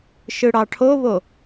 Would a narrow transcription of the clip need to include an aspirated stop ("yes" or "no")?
yes